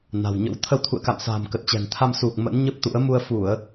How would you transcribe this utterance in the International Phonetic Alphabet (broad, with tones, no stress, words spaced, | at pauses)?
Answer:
na̤˨˩wɲə̰˧˥w t̪ʰə˧wt̪ʰṵ˧˨ə̯ka̰˧˨msa̤ː˨˩m kə˨˩t̚t͡ɕɛ̤˨˩nt̪ʰa˧m su˨˩k̚ mə̰˧˥nɲə˦˥p̚t̪ṵ˧˥ə̯ mu˧ə̯fu˧˩˨ə̯